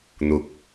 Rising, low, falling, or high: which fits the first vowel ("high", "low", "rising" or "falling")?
rising